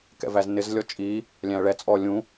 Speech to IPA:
k ɛ̰ v æ z n ɪ z lʲ ɔ t͡ʃʼ i | lʲ æ̃ ɐ̯ ɭ ɛ t͡sʼ ɔ lʲ ũ

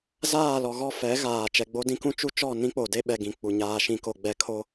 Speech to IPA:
z aː˦˨ l ɔ˨ ɣ ɔ˦˨ f ɛ˨˦ ɣ aː˨ t͡ʃ ɛ˨ ɡ͡b o˦ d ĩ˦ k ũ˦ t͡ʃ u˦ t͡ʃ ɔ˦˨ n ĩ˦ k͡p o˨ d e˦ ɓ ɛ˨ ɡ ĩ˨ k͡p u˨ ɲ aː˨ ʃ ĩ˨ k o˨ ɡ͡b ɛ˨˦ kʰ o˦

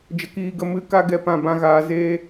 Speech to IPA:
d͡ʒ ə˧ k iː˧ ɡ ə˧ m ɨ˧ k a˦ ɡ ɛ˦˨ p ã˦˨ b ã˦ ɣ aː˧ z eː˦

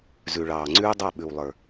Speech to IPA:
z ʉ˨ ɭ ɑː˨ ŋ͡ǀ ʉː˦ dˤ a˦˨ ɓ ʉ˨ w lˠ ə˞˨

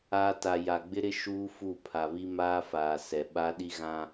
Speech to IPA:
aː˦ t a˨ j a˨ ɡ͡b ɪ˦ ɾ ɪ˦ ʃ uː˦ f u˦˨ pʰ a˨ β i˦ m aː˦ f aː˨ s ɛ˨ ɓ a˦ ɗ i˦ ɣ ã˦

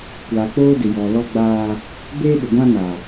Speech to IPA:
kʷ aː˨ k͡p oː˦ d ɪ˨ j ɔ˨ l ɔ˦ ɡ͡b aː˦ | b eː˦ ɗ ɪ˨ ɡʷ ã˦ n a˨

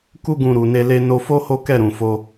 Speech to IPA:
k u˦ ɡ ũ˧ ɾ u˨ n e˧ l e˧ n o˧ f o˦ h o˦ k ɛ˦˨ ɾ ũ˨ f o˧

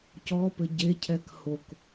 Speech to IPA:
c ɔ p ɘ ɟ e cʰ ɛ k h o k

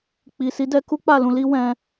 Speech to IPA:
k͡p i˨ s i˨˦ d ɛ˧ k u˦ k͡p a˦˨ l ũ˧ l i˦ w ɛ̃˧

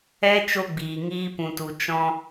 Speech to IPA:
ɛ˦ t͡ʃ o˦ ɡ͡b iː˨ ŋ iː˧ p ũ˨ t u˨ t͡ʃ ɔ̃˧

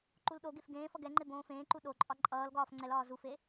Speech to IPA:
ǃ u l ɗ o ɡ e f ɡ ẽː f ʌ ɡ ɛ ŋ͡ǃ e b õː f ẽː ǃ u ɗ o ǃʼ ɒ ǃʼ ʌː l ɡ ɒː f ŋ͡ǀ ɛ l ɒː z u f e

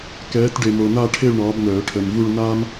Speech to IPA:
k ɛː˨˦ t ɖ e˨ m o˨ n a˥˧ ʈʰ e˥˧ ɭ ɳ ɒː˨˦ b n̪ œː˨˩˦ ʈʰ ə˨ m v u˥˧ ɭ n aː˥ m

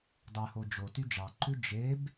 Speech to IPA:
dˤ ʉ h o d͡ʒ o t y d͡ʒ ɑ ǃ ʉ d͡ʒ e b

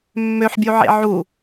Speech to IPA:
mː ø ħ bʲ u ʕ ḛ ʕ u

